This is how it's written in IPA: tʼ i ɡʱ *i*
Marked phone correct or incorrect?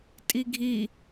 correct